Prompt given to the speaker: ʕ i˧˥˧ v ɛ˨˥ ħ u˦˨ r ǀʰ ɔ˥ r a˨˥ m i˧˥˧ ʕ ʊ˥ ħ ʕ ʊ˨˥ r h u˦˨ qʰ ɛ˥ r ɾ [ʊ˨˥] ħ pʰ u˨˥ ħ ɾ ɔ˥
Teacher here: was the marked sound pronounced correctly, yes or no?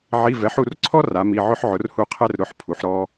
no